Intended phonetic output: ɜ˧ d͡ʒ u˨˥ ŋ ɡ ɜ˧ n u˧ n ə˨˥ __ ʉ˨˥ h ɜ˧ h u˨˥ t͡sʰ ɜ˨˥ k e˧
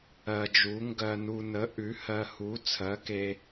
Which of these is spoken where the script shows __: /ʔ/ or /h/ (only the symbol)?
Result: ʔ